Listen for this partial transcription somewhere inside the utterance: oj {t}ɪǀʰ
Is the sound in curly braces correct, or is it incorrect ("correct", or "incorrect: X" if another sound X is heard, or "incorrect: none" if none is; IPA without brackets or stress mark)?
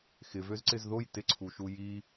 correct